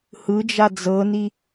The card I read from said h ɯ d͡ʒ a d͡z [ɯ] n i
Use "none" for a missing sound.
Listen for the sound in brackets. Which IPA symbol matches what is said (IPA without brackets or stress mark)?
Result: ɤ